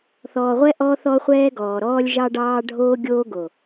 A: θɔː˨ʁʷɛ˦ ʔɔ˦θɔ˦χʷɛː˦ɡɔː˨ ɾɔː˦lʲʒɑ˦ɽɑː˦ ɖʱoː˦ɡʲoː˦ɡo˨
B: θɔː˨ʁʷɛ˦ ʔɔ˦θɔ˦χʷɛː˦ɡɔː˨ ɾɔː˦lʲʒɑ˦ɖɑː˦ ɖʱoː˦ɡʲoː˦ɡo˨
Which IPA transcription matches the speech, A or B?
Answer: B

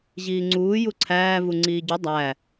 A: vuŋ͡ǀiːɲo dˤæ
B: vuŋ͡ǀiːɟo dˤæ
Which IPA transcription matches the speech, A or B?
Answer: B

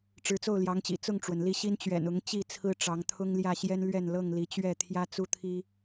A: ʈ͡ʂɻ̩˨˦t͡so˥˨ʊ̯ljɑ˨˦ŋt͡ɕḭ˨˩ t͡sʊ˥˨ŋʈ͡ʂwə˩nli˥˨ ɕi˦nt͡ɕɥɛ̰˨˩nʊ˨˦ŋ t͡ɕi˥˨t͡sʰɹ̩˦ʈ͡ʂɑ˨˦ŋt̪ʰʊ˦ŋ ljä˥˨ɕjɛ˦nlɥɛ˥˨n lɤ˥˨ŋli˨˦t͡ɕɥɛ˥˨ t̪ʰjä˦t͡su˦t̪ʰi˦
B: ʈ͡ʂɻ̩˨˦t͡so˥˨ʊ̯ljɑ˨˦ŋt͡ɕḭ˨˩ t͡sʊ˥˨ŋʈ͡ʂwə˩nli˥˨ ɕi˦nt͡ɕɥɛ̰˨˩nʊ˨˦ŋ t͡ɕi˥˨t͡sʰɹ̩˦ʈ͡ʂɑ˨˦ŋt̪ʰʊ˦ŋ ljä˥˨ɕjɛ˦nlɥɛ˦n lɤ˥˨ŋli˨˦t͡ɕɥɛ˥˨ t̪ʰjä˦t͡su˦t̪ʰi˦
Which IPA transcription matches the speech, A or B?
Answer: A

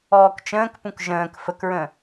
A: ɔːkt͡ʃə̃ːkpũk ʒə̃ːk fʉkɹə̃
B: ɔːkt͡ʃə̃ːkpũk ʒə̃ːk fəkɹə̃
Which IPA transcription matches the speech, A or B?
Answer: B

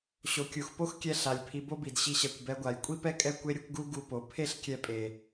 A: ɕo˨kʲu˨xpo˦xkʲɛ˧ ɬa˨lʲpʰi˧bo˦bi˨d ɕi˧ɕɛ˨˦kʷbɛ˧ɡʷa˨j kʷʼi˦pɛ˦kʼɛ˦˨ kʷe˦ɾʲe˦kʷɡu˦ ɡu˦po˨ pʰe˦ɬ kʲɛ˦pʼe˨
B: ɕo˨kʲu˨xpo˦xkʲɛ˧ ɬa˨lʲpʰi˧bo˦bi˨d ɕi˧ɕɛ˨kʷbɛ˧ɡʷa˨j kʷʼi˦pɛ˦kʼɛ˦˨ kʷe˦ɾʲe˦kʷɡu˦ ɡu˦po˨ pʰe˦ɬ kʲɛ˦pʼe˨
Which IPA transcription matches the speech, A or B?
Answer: B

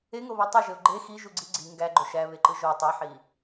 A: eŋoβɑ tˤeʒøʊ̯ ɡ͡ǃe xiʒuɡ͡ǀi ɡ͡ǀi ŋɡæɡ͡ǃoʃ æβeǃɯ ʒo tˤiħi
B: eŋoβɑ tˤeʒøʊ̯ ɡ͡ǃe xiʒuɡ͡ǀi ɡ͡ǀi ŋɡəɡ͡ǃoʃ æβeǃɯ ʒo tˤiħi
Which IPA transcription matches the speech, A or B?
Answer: A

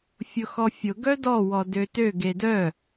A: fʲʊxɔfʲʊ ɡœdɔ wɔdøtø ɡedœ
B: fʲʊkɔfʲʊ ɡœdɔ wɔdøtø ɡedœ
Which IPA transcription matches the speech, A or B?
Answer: A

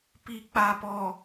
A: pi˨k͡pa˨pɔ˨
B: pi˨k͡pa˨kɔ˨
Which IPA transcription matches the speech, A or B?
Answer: A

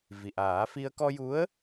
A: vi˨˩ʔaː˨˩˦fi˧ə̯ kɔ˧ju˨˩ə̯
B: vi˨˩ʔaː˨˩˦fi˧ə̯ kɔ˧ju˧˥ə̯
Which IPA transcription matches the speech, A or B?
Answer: B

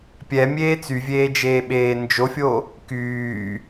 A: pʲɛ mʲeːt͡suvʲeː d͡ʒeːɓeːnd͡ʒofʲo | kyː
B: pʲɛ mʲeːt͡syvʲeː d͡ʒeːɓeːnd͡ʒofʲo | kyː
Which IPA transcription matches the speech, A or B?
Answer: B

